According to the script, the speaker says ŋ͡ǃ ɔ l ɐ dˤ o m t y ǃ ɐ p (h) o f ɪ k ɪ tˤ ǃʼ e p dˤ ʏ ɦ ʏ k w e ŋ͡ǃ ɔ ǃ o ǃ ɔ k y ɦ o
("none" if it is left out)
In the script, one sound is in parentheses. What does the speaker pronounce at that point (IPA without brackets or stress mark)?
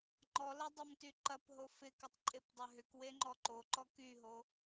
ɦ